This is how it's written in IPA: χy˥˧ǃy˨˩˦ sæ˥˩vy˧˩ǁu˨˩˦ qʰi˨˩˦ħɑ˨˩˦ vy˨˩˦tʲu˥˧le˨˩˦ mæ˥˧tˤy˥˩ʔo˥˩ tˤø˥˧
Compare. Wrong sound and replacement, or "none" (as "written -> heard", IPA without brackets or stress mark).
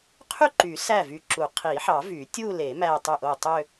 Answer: χ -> qʰ